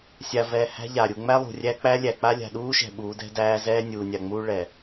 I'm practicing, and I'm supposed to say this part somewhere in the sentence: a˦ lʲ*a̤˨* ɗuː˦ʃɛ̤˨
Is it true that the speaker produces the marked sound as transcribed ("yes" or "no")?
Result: yes